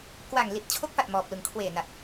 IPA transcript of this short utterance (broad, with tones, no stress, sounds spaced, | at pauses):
k w aː˨˩ ŋ l i˨˩ t̚ t͡ɕʰ o˦˥ k̚ f a˨˩ t̚ m ɔː˨˩ p̚ l ɯ˨˩ ŋ kʰ w eː˨˩ n a˨˩ t̚